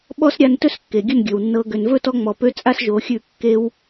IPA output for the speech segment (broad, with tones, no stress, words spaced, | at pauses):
ɓɔ˦sɾʲa˧ntɵ˦skːe˨ ɡʲə˦˨nɡʲɵ˨wnːɤ˧ ɡø˨nvɵ˦˨tɔ˧ŋ͡mɔ˨ pø˦t͡sʼa˦sʒo˨˦xʲʉ˦˨ kːe˧w